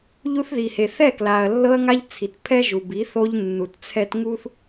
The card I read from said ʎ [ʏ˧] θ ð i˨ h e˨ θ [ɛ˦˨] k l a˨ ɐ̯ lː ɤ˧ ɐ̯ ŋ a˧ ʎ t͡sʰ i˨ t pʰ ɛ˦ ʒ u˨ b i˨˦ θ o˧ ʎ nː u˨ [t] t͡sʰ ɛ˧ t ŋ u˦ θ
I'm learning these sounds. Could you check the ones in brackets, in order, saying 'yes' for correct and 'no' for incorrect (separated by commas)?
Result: no, yes, yes